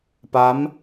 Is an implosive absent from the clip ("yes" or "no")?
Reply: yes